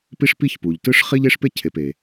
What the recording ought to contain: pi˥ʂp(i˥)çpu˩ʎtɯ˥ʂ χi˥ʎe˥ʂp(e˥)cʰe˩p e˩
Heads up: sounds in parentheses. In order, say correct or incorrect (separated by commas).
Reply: correct, correct